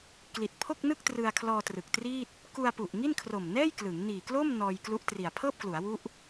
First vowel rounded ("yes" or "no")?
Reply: no